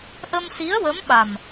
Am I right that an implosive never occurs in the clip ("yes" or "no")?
no